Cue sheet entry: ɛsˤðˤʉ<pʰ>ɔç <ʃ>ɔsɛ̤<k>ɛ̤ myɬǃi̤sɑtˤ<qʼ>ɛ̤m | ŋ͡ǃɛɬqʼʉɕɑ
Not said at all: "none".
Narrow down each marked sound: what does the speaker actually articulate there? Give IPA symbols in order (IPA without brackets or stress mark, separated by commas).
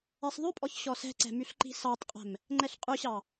pʼ, ɕ, ǀ, qʼ